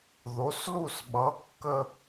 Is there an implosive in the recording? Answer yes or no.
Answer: yes